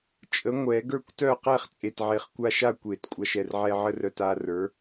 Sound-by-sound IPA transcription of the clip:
t͡ʃʼ ə˨˥ ŋʷ ɛ˨˩˦ ɡ ə˞˥˨ kʷ t œ˥˨ q ɛ˥˨ χ t͡sʼ e˨ t ʕ e˨ χ kʷ a˦ ʃ a˥˨ kʷ e˨˩˦ t kʷʼ a˨˥ ʃ ɛ˨ r ʕ ɛ˦ ʕ ə˦ r œ˨ t a˦ r ə˞˨˥

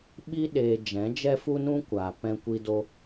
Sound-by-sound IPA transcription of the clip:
ɓ i˦ ɗ eː˧ d͡ʒ ɛ̃˨˦ d͡ʒ ɛ˦ f u˦ n ũ˦ kʷ aː˨ p ɛ̃˧ kʷ i˧ d o˧

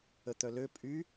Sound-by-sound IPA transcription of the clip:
ə t̪ œ l ø pʼ y

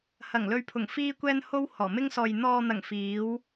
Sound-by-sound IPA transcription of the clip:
h ɐ˨˩ ŋ l ɵ˨ ɥ pʰ ʊ˨˩ ŋ f iː˧ kʷ ɛː˧ n h o˧ w h ɔː˨˩ m ɪ˧ ŋ s ɔː˨ j n̪ ɔː˨ n̪ ɐ˨˩ ŋ f iː˨˧ w

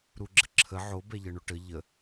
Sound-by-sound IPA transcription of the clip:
ɾ u ɡ͡ǁ ə ǁʰ ə ʕ o b ɛ ʎ ə ɳ o ʈ ə ʎ ə

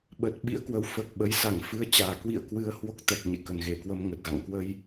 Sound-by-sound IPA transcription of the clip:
ɓ ə˨˩ t̚ ɓ ḭ˧˥ ə̯ k w ə˨˦ w f əː˨˩ k̚ ɓ ə˨˦ j s a˧˩ ŋ f ɨ˧ ə̯ t͡ɕ aː˨˩ k w ḭ˧˨ ə̯ k w ɨ˧ ə̯ h w o˦˥ k̚ t̪ ɛ˨˩ k̚ ɲ ḛ˧˨ k ə˨˩ n ɣ e˧˩ k w ə˧ m ŋ ə˨˩ t̚ ɣ a̰˧˨ ŋ k w ə˧ j

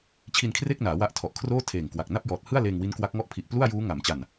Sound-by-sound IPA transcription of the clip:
t͡ɕʰ i˧ n kʰ r e˥˩ k̚ n aː˩˦ w a˦˥ ʔ tʰ ɔ˨˩ ʔ kʰ r oː˥˩ tʰ eː˨˩ ŋ k w a˨˩ k̚ n a˥˩ p̚ j ɔː˨˩ t̚ h ɯ˥˩ a̯ l eː˧ ŋ w i˦˥ n k w a˦˥ k̚ ŋ ɔ˥˩ ʔ pʰ i˨˩ ʔ p l u˥˩ a̯ j uː˦˥ ŋ a˩˦ m t͡ɕ a˨˩ n

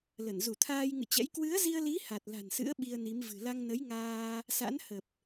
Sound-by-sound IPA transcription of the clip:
l ə˧˩ n z u˧˩ t̪ʰ aː˧ j ŋ ɨ̰˧˨ t͡ɕ ɛ̰˧˥ j k w ɨ˨˦ ə̯ z i˧ ə̯ l i˨˦ h a˨˩ t̚ l a̤˨˩ n s ɨ̰˧˥ ə̯ ɓ i˧ ə̯ n i˨˦ m v ɨ̤˨˩ l a˧ ŋ n ə˨˦ j ŋ aː˧ | s a̰˧˥ n h ə˨˩ p̚

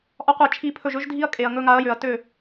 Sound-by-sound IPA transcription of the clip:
ʔ ɒ˦ qʷ e˦˨ t͡ʃʰ i˧ pʰ ɵ˦˨ ʒ ɵ˦ ʒ dʱ i˦ ɐ̯ kʼ e˨ ɐ̯ ŋ ɵ˧ ŋ a˨˦ ɐ̯ j ø˨ ɐ̯ t ø˦˨

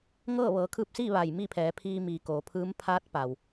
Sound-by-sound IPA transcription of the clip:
ŋ ɤː˥˨ ʋ ɤː˩˧ kʰ ɯː˧ p̚ s iː˥˨ ʋ a˧˩ j m i˥˨ pʰ ɛː˩˧ pʰ iː˧ m iː˩ k oː˩˧ pʰ ɯː˧˥ m pʰ aː˧˥ t̚ p a˩ w

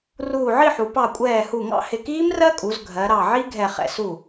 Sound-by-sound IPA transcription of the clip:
r uː˧˩ ʕ i˥˨ ħ u˩˧ p ɑ˧˩ kʷʼ ɛː˧˩ h u˧˩ ŋ ɑ̰˥˨ h ɪ˧˩ k iː˦˥ m r ɜ˦˥ kʼ u˩˧ z ɡʱ ɜ˩˧ ɾ ɑ˧˩ ʕ i˦˥ ɡʱ ɛ˧˩ χ ɛ̰˧˩ s u˧˩

